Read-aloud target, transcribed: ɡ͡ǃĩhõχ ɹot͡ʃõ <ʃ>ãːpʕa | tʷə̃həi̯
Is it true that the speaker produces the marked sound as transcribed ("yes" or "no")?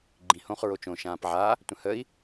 yes